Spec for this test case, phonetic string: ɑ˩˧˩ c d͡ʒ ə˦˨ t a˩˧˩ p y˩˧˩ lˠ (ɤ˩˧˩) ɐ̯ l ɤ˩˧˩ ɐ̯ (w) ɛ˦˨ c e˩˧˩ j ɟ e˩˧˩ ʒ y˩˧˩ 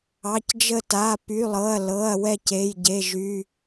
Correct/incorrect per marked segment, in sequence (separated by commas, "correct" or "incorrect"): correct, correct